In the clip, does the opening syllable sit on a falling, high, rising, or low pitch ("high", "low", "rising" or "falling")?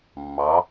rising